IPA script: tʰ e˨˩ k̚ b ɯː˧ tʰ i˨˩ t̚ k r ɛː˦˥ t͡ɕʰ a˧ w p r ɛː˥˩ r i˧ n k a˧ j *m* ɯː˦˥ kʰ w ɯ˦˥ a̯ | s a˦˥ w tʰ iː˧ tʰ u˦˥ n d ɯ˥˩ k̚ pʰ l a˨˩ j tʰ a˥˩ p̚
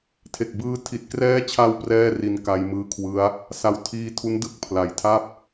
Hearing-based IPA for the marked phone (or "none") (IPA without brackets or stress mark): m